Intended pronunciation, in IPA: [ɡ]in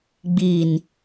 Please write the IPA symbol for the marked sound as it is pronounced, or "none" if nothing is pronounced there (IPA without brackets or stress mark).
ɡ͡b